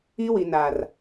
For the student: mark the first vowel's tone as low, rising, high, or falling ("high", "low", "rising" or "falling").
high